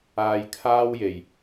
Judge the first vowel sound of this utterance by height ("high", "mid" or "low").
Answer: low